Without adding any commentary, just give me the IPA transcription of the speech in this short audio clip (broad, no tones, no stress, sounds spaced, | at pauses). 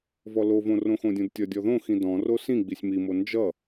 v ɔ l o v õ r õ x õ dʲ õ d tʲ ʌ dʲ ɔ ð õ x ĩ d ɔ̃ r o s ĩ ɡ͡b i sʲ m i m o n d͡ʒ ʌ